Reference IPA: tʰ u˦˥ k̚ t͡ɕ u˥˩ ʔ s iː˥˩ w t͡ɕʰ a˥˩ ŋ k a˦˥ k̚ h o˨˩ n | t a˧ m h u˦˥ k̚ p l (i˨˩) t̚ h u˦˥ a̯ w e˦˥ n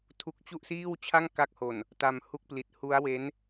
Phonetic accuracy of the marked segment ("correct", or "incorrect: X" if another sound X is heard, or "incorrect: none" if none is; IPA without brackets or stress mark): correct